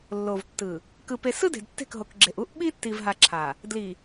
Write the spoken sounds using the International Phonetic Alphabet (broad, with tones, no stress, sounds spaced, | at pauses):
lː o˨ v tː ɯ˨ | k ɯ˨ p e˨ s ɯ˦ d e̤˨ d tː e̤˦˨ k ɦ o˨ k ɡ͡ǁ e˨ ʔ u˦ ʔ ɓ i˦ tː i˨ v ɦ a˨ ǁʰ a˨ | d l i˨